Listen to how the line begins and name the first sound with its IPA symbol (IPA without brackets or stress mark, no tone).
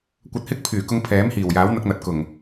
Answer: kʷ